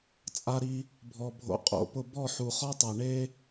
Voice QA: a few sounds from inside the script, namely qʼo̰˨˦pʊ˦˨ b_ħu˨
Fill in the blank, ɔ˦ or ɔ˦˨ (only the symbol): ɔ˦˨